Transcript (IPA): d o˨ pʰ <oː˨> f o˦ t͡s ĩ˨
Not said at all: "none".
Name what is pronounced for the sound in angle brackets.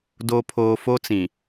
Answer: oː˨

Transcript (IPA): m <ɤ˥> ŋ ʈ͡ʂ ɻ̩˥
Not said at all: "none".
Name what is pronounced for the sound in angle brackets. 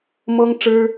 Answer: ɤ˥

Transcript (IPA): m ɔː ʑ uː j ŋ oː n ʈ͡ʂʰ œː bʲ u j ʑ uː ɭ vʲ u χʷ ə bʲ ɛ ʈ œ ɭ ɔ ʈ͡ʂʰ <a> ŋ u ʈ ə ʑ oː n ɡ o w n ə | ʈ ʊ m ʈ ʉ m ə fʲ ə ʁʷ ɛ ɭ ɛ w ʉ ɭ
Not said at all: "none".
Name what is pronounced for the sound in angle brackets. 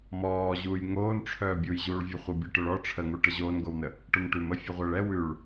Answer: ə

